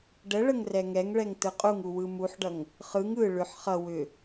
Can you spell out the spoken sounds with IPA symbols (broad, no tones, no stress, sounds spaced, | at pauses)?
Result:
ɖ ə ɭ ə ŋ r ɛ ŋ ɛ ŋ ɭ ɛ ŋ t ɯ qʼ u ŋ u w ɯ m u ħ ɖ ʌ ŋ | χ ɯ ŋ ɯ ɭ ʏ ħ χ ʌ w ʏ